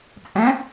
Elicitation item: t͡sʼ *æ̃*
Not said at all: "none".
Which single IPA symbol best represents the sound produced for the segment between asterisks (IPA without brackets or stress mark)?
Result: æ̃